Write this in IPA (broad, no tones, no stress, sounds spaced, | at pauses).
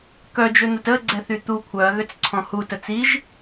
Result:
k œ d͡ʒ ø n̪ ə t ə ɡ͡ǀ ɛ θ y t̪ u kʷʰ œ ɐ̯ ɣ ø t͡s ǀʰ ɔ̃ h u t ə t͡s i ʒ